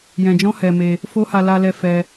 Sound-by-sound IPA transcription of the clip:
j ɛ̃˧ d͡ʒ ɔ̃˦ h ɛ˧ m e˧ | f o˦ h a˧ l a˧ l ɛ˧ f ɛ˧

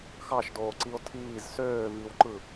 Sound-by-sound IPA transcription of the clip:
x ɑ ʃ d oː ǀ i o̯ tʰ iː z s øː v i w ǃ ɯ

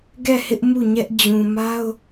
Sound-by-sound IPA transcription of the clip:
ɡ ɛ˦˨ h ɪ˦ ʔ m u˦˨ ɲ ɛ˦ ʔ d͡ʑ ũ˨ m a˦ ʊ̯

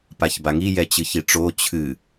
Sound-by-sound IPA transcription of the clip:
p a ç b a ŋ i j ɛ t͡ɕ ɨ ç i ʈ͡ʂ o t͡ɕʰ ɨ

